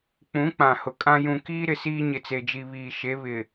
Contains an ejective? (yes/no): yes